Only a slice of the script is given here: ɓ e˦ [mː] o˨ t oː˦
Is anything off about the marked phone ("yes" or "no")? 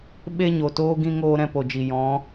yes